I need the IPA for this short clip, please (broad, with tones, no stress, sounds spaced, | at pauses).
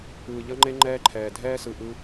ɯː˨ ʎ ʌ˦ ŋ͡ǃ e˦ ŋ͡ǃ ɛː˦ ǃʰ ɛː˨ dʱ ɛː˦ s ɯ˨ ʔ ɯ˧